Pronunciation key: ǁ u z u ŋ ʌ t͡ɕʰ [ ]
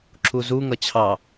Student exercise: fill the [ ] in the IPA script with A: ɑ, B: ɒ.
A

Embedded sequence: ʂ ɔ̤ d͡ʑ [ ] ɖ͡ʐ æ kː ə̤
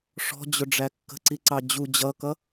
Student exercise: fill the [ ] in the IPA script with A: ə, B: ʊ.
B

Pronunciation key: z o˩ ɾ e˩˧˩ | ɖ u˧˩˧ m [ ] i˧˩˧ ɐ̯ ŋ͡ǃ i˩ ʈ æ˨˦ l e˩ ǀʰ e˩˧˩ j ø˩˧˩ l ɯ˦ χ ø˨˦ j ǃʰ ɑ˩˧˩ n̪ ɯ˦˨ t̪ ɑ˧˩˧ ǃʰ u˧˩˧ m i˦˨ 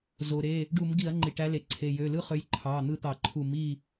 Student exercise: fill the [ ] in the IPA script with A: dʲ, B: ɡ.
B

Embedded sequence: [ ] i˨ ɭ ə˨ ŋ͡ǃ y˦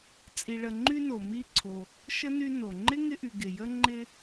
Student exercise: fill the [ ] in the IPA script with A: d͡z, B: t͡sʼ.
B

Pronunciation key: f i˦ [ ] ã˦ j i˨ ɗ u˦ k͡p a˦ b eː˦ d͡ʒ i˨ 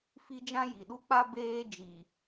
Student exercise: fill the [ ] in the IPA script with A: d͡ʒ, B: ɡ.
A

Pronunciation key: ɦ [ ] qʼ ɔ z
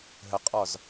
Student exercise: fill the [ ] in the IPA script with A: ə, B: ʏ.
A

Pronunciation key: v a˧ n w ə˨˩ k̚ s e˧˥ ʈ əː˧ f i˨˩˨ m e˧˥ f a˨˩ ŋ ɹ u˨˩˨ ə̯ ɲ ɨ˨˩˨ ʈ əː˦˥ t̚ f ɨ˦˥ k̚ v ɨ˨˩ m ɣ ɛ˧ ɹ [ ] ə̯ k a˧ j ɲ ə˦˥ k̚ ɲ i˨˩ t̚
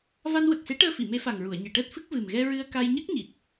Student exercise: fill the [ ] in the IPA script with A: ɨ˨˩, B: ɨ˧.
B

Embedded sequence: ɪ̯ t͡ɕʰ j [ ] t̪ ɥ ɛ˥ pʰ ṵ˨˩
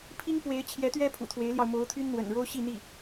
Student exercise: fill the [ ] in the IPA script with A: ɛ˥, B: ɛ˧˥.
B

